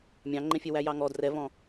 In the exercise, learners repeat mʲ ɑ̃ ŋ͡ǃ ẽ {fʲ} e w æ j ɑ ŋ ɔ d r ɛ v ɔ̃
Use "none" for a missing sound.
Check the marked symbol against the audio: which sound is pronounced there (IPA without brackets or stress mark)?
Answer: fʲ